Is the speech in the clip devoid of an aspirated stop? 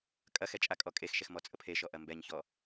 no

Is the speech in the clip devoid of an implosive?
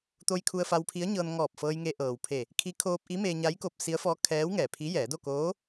yes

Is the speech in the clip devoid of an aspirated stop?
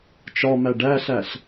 yes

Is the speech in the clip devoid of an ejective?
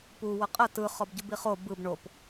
no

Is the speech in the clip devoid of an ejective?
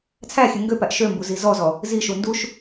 yes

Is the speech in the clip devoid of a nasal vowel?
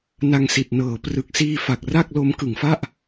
yes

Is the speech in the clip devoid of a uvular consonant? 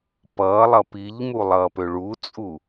yes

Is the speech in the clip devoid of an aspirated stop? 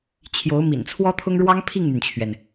no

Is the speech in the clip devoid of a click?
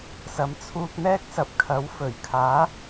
yes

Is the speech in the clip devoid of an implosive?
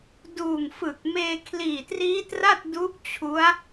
yes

